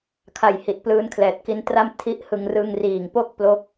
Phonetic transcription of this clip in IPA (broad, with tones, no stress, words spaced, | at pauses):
kʰa˨˩j hi˨˩t̚plɯː˧n kʰlɛː˨˩t̚ki˦˥ntra˥˩m tʰi˦˥ʔhɯ˧ŋ rɯ˧ŋriː˨˩ŋpo˥˩k̚ plo˦˥k̚